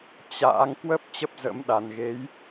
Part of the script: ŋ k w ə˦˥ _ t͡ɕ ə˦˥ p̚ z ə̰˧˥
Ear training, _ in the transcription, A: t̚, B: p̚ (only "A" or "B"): B